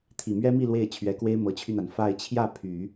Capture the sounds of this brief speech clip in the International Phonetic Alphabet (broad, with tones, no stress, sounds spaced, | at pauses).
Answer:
t̪ʰ i˨˩ m ɥ ɛ˥ m i˥˧ l w e˥˩ ɪ̯ t͡ɕʰ ɥ ɛ˧˥ k w e˥ ɪ̯ m ɤ˧˥ t͡ɕʰ y˧ n̪ a˩ n f a˥˧ ɪ̯ t͡ɕʰ j ä˥˩ pʰ y˨˩˦